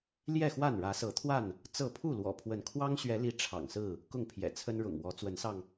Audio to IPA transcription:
l j ɛ˥˨ x w a˥˨ n ɻ ä˨˦ s ɤ˨˦ t̪ʰ w a˥˨ n | t͡s ɤ˥˨ pʰ u˥˨ l w ɔ̰˨˩ pʰ w ə˨˦ n kʰ w ɑ˦ ŋ ɕ ɥ ɛ˨˦ l i˨˦ ʈ͡ʂʰ ɑ̰˨˩ ŋ s ɹ̩˥˨ | k ʊ˥˨ ŋ pʰ j ɛ̰˨˩ t͡sʰ ə˦ n ɻ ʊ̰˨˩ ŋ w ɔ˨˦ t͡s w ə˨˦ n s ɑ˧ ŋ

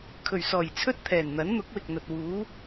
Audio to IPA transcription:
kʰ ɵ˨˩ ɥ s ɔː˨˩ j t͡sʰ ɵ˥ t̚ t̪ʰ ɛː˨˩ n n̪ ɐ˨˥ n n̪ ʊ˨˥ k̚ w ɪ˨ k̚ n̪ ɐ˨ t̚ w uː˨˥

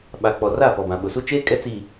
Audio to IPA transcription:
ɓ a˨ k͡p ɔ˨ r a˦˨ p ɔ˨ b ã˨ ɓ ʊ˨ s u˦ t͡ʃ eː˦ kʼ ɛ˦ t͡s iː˨

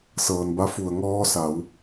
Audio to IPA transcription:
s ɤː˩ n b a˧˥ f u˩ ə̯ ŋ ɔː˧ s a˩˧ w

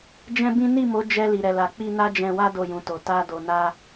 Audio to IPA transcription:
d͡ʒ ɛ̃˦ b ĩ˦ n i˦˨ m o˨˦ d͡ʒ ɛ˧ l i˨ ɾ ɛ˨ l a˨ k͡p i˧ n a˦ d͡ʒ ɛ̃˧ w a˦ d o˦˨ j ũ˨ t o˨ t a˧ d o˨ n a˧

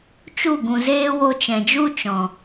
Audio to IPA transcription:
t͡ʃ u˦˨ ɡ ũ˨ z eː˦ w o˧ t͡ʃ ɛ̃˨ d͡ʒ u˦ t͡ʃ ɔ̃˨

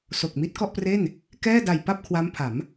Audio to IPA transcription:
s o˨˩ k̚ m i˦˥ t̚ k ɔ˥˩ ʔ p r e˥˩ n | k ɛː˥˩ d a˨˩ j p a˥˩ p̚ kʰ w a˦˥ m pʰ a˩˦ m

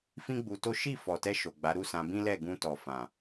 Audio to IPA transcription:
f ĩ˦ ɡ͡b u˧ t o˦ ʃ i˦˨ f ɔ˨ t ɛ˧ ʃ o˨ ɡ͡b a˨˦ ɾ u˦˨ s ã˧ b ĩ˦ l ɛ˦˨ ɡ ũ˧ t ɔ˨ f ã˨

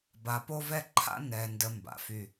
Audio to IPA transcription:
b a˨ p o˦ v ɛ˦ ǃʰ a̰˦ n ɛ˨ n d ə˨ m b a̰˨ f y˦

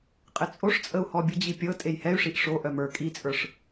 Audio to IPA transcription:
qʼ ɪ t͡sʼ o ʂ t͡sʼ ə u̯ h ɔ bʲ ə d͡ʑ i pʲ ɤ tʼ e j h ɛ y̯ ʂ i ʔ ʂ o ʔ œ m ə˞ kʼ i t͡sʼ ə˞ ʂ

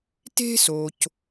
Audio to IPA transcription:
t e̤˥ s o˨ c

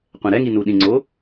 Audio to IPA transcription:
qʷ ɛ̃ ɾ ɛ ŋ i n u ɗ ĩ ŋ͡ǀ o

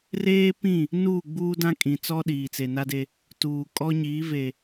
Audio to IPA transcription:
r eː˦ p ĩ˦˨ | n uː˦˨ ɡ͡b uː˦ d ã˦ kʼ ĩ˨ t͡s ɔ˦ ɗ iː˨ t͡s e˨ n a˦ d e˦ | t uː˨ kʼ ɔ˦ ɲ iː˨˦ v e˨

